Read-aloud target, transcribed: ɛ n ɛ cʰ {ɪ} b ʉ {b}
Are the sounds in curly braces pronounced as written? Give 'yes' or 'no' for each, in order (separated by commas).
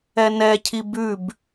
no, yes